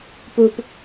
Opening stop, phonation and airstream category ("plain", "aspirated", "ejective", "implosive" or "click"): plain